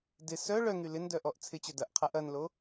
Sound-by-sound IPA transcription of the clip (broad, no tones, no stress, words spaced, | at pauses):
dɪ sœ ɭœŋy lɪndœʔɔʔ t͡sʰɪt͡ɕœ dɐʔqʰaʔ ɐnlo